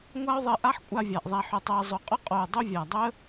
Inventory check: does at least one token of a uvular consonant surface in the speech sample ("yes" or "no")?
yes